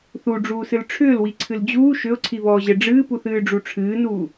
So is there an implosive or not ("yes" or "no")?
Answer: no